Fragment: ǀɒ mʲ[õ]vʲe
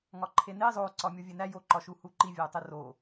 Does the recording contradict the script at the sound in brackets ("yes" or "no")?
yes